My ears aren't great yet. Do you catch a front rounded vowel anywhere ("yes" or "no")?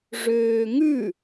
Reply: yes